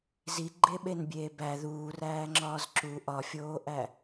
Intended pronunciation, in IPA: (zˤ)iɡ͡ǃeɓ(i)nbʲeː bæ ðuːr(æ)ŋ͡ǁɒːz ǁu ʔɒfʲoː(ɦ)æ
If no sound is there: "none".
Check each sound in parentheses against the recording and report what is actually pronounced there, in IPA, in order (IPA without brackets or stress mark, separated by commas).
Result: z, e, æː, ʔ